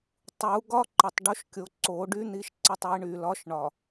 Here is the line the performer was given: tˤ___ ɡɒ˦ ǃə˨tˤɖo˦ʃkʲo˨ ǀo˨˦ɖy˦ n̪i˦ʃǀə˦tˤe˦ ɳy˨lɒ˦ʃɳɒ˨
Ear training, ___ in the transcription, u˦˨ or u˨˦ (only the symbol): u˨˦